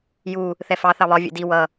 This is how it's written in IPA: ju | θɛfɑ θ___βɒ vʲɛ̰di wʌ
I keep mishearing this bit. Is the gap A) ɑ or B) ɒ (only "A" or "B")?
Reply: A